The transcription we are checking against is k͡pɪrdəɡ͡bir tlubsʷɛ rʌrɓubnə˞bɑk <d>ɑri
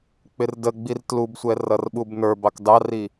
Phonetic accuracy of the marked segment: correct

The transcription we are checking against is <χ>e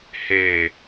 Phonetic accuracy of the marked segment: incorrect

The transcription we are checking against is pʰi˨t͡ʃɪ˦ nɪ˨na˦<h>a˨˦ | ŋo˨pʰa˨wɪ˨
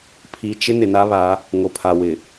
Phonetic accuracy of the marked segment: incorrect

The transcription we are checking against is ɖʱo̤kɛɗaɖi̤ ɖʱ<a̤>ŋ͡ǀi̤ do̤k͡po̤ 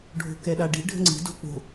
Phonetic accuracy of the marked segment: incorrect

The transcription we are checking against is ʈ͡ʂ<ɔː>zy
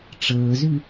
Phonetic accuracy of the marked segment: incorrect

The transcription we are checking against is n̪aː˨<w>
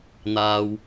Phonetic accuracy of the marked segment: correct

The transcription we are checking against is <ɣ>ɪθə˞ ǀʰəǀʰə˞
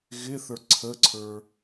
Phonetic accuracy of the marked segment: correct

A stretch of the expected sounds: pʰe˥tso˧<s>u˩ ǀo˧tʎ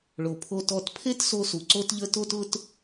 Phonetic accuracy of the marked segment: correct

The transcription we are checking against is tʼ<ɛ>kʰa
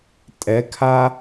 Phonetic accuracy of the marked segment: correct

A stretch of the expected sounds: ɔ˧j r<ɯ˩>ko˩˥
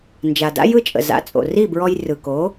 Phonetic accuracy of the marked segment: correct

